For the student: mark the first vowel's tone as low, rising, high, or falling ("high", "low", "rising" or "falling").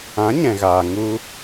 rising